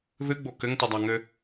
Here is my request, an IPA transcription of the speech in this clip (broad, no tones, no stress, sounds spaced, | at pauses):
ð ɨ ɡ͡b o k ɘ ŋ t ɯ dˤ a ŋ ɘ